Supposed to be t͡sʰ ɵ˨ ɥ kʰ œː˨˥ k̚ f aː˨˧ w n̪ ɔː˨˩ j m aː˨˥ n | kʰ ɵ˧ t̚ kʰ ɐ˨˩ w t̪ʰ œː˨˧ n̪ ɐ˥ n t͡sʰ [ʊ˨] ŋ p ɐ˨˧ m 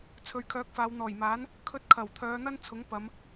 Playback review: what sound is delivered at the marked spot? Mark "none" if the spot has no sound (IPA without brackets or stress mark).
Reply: ʊ˨˥